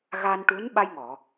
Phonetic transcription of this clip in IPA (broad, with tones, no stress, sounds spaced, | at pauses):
ɣ a˧ n ʈ u˧˥ n ɓ a˧ j ŋ ɔ˨˩˨